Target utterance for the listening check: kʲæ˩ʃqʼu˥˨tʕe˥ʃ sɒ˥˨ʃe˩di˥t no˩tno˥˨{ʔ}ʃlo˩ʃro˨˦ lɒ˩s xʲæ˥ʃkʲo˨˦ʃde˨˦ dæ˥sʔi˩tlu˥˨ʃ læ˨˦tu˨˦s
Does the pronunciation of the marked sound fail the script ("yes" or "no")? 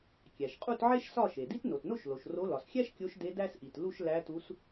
yes